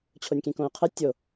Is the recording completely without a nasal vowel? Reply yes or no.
no